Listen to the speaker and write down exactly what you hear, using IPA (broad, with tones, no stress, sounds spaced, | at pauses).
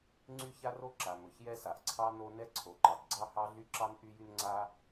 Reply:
ŋ͡ǀ y˥ ç a˥ r o˥ ǁ a˩ m ɵ˩ ç j ɛ˥ s a˩ ʔ ǀʰ ɑ˥ n o˥ n ɛ˥ ǀʰ o˩ ǃ ɑ˩ d ɡ͡ǀ ɑ˥ h ɑ˥ ɮ y˥ ǁ ɑ˥ n ʔ y˥ j y˥ n ŋ͡ǀ a˥